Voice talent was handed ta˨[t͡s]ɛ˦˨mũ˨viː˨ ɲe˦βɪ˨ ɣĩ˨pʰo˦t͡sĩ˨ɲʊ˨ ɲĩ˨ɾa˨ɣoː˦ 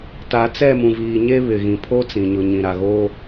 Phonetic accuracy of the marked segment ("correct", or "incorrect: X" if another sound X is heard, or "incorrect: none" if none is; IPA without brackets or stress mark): correct